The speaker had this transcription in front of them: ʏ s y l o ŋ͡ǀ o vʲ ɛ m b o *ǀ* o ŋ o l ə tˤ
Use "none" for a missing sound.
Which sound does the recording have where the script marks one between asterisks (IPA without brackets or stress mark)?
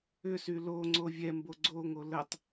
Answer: ɡ͡ǀ